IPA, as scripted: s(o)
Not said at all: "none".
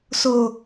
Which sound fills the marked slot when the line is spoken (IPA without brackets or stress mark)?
o